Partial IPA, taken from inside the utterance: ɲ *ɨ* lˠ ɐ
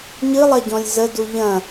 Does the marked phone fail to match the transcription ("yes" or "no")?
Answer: no